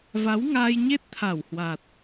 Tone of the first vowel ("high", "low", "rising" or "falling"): rising